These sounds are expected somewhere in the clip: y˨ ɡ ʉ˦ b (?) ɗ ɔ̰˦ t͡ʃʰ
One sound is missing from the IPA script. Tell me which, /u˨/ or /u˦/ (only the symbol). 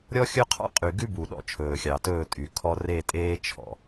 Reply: u˨